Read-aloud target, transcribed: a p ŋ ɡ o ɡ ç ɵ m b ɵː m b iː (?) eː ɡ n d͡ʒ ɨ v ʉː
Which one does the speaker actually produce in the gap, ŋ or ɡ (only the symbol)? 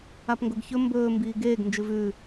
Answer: ɡ